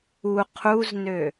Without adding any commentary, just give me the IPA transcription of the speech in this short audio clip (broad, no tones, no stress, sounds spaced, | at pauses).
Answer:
u qʰ u z n ø